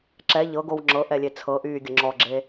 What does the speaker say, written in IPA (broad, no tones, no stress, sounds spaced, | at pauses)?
ǁ ɛ ʎ ɤ ɡ o w ŋ͡ǁ ɤ ʔ ɛ lʲ e t͡sʰ ɤ ʔ yː ɡʲ ə ŋ͡ǁ ɔ ɡ͡ǁ e